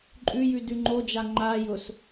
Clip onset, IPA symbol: ǃʼ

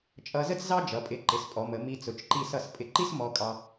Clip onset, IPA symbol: t͡ʃʼ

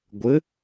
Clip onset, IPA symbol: ɡʷ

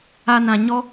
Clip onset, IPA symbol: a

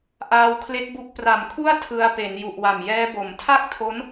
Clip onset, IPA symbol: ʔ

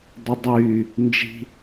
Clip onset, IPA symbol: dˤ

